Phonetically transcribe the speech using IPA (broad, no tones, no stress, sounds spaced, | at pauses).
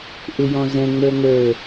ʔ ɪ j ɔ̃ z ɛ̃ ŋ͡m ə˞ ŋ ə˞